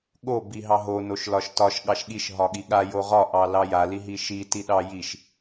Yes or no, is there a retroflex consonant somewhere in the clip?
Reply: no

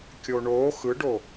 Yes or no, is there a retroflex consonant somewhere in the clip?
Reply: yes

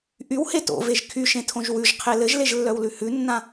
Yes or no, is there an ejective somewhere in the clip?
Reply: no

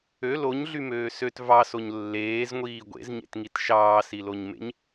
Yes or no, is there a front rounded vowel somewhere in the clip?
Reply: yes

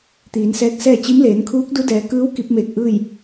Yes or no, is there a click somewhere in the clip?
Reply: no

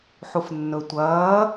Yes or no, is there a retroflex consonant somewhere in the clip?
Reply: no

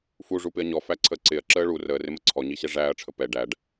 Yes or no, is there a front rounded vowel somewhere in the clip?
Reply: no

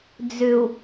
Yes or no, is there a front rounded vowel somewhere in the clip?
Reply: yes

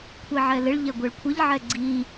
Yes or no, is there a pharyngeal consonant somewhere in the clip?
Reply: yes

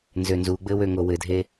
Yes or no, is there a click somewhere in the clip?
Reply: no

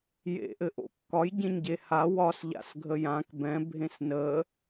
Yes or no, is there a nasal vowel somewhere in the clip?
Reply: yes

